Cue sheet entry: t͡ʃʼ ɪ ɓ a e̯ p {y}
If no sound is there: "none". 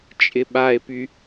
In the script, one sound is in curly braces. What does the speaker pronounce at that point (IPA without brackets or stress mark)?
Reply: y